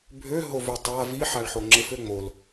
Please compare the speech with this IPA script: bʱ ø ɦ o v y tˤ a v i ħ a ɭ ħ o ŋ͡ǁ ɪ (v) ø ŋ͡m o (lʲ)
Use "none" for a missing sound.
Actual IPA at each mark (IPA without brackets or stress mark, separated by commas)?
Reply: f, l